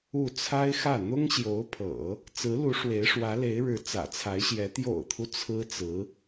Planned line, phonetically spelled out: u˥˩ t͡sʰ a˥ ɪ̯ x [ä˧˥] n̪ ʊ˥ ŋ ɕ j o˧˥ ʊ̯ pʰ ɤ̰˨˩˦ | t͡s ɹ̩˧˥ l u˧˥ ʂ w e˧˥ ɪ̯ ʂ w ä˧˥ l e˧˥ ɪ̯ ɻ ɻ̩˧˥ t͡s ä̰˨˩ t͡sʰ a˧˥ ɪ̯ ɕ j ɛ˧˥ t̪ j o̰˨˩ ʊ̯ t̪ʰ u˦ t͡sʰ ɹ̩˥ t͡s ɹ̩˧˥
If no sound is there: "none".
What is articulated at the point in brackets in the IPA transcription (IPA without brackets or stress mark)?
ä˥˩